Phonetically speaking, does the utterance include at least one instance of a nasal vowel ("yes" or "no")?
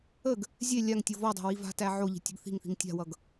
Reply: no